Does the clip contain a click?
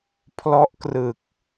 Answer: no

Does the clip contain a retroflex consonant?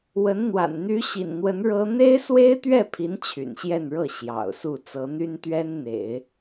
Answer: yes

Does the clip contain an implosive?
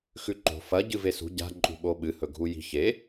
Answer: yes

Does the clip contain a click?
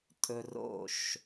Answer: no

